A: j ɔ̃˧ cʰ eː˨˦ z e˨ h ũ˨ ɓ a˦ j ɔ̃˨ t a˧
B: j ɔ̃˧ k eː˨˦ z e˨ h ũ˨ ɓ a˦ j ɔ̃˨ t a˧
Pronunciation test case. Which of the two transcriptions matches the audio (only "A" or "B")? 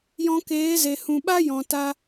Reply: B